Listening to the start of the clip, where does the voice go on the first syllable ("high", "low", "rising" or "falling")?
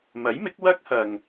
rising